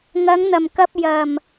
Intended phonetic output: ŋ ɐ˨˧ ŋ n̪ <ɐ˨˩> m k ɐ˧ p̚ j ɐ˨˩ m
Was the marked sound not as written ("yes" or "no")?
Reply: no